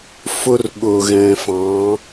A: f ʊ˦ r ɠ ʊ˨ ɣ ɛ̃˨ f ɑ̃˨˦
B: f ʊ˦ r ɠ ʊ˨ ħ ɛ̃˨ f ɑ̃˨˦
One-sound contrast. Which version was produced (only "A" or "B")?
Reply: A